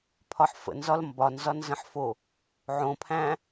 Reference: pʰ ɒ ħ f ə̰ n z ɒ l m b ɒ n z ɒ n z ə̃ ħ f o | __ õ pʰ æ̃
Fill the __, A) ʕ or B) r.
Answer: A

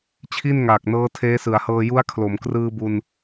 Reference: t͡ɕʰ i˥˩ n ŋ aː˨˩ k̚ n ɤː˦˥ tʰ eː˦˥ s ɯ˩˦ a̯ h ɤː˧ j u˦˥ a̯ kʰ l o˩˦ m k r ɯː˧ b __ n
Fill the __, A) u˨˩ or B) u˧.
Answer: B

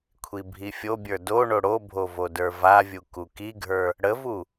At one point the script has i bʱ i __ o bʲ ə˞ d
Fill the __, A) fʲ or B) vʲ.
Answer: A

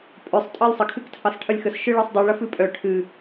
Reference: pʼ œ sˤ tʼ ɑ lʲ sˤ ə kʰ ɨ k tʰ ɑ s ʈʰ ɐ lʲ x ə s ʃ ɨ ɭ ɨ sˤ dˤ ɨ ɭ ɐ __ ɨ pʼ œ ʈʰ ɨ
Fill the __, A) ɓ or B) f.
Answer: B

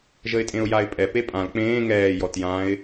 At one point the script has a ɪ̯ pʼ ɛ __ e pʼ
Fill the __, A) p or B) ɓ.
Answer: A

